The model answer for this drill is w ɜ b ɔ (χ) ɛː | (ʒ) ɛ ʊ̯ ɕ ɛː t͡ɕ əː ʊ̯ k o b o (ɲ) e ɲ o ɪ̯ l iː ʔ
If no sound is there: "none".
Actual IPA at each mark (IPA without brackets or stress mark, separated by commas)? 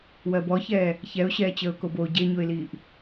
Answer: ç, ç, ɟ